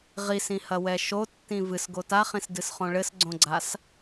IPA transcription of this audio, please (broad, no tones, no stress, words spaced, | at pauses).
ʁisĩhɐwɛ ʃotːĩ vɨsɡo taχĩsdɨsχõ ɭɘsɡ͡ǀõɡ͡ǀas